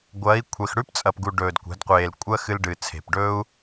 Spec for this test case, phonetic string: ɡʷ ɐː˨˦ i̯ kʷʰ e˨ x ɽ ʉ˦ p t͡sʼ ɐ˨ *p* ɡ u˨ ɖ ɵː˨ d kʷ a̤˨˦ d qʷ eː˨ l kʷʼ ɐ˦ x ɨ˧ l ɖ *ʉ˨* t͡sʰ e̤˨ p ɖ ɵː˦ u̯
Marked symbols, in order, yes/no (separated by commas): yes, no